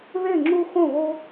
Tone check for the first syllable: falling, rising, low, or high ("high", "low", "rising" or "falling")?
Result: falling